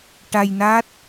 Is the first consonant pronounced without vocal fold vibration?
yes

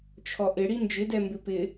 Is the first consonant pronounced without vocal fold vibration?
yes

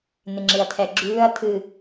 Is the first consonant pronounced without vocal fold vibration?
no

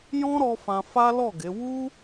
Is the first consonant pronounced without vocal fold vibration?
no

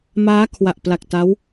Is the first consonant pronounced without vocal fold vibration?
no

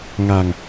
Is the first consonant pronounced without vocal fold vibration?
no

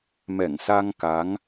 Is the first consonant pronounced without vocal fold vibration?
no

